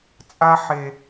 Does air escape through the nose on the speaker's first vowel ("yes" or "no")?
no